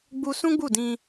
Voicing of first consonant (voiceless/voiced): voiced